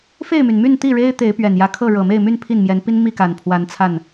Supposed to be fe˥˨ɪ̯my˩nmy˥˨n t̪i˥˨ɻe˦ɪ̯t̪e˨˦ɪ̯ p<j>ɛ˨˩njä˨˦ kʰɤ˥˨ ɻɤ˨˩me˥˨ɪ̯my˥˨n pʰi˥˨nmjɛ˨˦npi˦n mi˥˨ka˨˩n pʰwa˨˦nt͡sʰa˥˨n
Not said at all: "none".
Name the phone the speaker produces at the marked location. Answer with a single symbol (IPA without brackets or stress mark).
ɥ